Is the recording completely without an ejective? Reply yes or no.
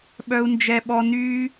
yes